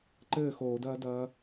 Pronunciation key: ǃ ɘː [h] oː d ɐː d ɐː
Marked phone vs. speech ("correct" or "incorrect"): incorrect